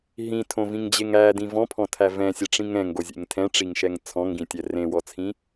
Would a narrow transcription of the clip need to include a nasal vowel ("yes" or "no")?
yes